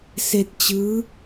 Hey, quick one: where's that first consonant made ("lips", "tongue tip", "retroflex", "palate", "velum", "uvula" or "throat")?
tongue tip